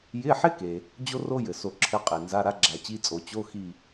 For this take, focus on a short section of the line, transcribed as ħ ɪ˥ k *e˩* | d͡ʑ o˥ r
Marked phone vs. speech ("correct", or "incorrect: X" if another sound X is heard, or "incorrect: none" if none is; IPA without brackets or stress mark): correct